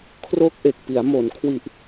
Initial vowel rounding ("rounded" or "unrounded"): rounded